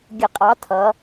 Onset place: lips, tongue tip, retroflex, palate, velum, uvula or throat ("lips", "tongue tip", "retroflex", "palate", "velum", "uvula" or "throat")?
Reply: velum